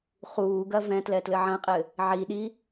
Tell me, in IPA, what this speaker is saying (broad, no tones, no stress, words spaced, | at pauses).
χuːɡɐ vɛ̃tlɛ tlɘʕɐ̃qʼɘ | ʕiɗi